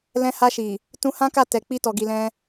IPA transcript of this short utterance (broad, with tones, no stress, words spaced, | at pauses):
lɛ̃˧ha˧ʃi˨ | tũ˧hã˦ka˦˨ tɛ˨ k͡pi˧tɔ˨ɡi˨lɛ̃˧